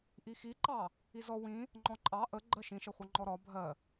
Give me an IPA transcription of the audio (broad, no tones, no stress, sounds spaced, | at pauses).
ʔ i x i ǃ ɑ | i z ɔ w ĩ | ŋ͡ǃ ɔ̃ ǃʼ ɑ ʔ ə ɡ͡ǃ ɜ ʃ ĩ ʃ ʌ χʷ ʌ ŋ͡ǃ ɔ ɾ ɒ bʱ ɜ